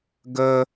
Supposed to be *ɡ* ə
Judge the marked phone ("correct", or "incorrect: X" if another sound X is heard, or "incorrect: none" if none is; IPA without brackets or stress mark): correct